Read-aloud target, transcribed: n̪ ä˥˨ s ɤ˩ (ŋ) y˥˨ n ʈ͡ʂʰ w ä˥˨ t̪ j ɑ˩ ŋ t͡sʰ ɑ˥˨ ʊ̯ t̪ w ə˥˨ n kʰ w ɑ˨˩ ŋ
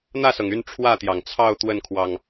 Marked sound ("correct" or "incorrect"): correct